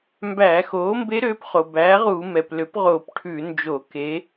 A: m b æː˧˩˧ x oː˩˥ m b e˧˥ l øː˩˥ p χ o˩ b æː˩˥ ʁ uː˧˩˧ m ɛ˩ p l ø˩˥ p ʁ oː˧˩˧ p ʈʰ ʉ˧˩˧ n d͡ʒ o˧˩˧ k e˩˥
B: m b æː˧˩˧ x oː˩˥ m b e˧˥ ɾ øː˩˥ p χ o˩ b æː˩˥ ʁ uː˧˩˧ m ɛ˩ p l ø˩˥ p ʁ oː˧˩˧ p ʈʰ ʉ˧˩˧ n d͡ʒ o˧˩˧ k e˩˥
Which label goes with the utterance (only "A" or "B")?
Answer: B